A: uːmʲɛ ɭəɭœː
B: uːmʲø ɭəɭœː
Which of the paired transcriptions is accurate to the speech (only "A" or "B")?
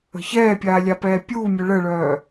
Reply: B